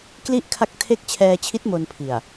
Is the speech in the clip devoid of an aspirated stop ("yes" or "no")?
no